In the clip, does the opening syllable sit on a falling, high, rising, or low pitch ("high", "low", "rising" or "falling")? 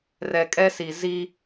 low